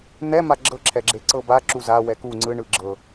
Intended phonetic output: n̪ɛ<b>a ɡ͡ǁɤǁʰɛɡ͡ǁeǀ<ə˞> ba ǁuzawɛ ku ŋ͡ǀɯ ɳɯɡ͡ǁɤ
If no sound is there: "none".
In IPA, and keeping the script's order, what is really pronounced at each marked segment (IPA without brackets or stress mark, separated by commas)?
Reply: m, ɤ